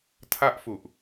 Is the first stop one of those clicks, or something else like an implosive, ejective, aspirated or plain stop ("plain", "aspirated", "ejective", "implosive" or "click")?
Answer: aspirated